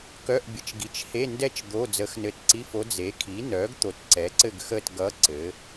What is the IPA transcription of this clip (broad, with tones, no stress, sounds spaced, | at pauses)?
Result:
k œ˧˥˧ ʔ bʲ ə˨ t͡ʃ ɡ i˨ t͡ʃ h e˧˥˧ n d ɛ˥˧ t͡ʃ d̪ o˧˥˧ d͡z əː˧˥ x n ɘ˧˥ t ǀ i˧˥˧ f o˧˥ d͡z e˩˥ kʰ i˩˥ n œ˩˥ ɡ t̪ o˨ t ǀ ɛ˩˥ ǀ ɘ˥˧ ɡ x əː˥˧ t ɡ ʌ˧˥ ǀ ɘ˩˥